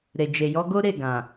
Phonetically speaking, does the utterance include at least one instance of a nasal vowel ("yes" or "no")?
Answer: yes